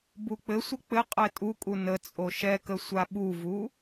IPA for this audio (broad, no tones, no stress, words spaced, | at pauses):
buk͡pɘsʷɘ k͡pɘ qʼɛtʼukʼu nət͡sʼo ʃɛkə sʷaɓuvu